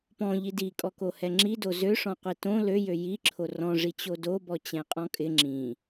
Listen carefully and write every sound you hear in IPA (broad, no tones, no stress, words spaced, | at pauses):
pɔ̃ʎi dikʼɔkohɛ ŋ͡ǁido zøʂɔ̃qʷi tõ løjø jiǁʰo rɔ̃ ʐit͡ɕodobɔ t͡ɕɛ̃qʼɔ̃kʼɪ ŋ͡ǁĩ